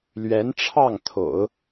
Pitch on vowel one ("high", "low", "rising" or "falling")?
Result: rising